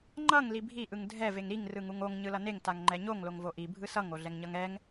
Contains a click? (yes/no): yes